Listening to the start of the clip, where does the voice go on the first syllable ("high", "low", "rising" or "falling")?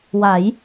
rising